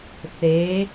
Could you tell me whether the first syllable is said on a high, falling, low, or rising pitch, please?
rising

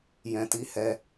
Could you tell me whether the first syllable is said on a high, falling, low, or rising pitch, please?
low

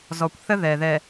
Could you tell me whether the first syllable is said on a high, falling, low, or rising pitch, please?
low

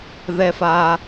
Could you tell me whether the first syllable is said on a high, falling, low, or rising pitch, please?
high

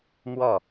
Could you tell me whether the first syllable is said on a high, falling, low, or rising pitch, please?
falling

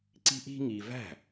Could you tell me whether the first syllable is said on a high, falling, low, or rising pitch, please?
high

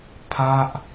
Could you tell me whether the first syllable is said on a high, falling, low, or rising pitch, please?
falling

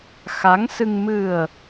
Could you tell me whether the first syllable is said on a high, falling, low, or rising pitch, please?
rising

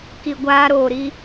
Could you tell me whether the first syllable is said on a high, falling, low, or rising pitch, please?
low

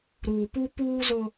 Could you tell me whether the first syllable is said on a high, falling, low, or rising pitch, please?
low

